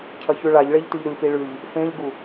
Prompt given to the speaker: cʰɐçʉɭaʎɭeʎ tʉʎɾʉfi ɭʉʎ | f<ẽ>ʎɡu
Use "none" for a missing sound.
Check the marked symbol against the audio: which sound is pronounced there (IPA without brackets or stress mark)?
ẽ